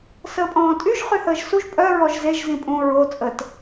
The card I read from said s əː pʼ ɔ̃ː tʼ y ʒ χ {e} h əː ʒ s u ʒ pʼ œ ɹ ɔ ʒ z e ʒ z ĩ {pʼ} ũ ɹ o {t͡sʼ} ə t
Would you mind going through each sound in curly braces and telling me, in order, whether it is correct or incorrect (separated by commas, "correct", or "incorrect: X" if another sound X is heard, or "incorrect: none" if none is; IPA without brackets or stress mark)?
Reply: incorrect: y, correct, correct